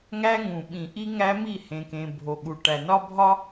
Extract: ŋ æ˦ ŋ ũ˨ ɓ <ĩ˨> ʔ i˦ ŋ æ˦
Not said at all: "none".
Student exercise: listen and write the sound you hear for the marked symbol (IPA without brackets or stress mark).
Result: ĩ˨